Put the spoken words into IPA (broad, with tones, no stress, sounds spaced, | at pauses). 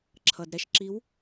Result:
ǁʰ ʌ˩ d ɾ ɛ˥˩ ʃ ǁ i˨˦ w